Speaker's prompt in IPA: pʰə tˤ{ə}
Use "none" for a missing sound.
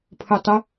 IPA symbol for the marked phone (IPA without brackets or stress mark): ə